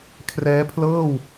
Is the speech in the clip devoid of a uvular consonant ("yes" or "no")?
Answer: yes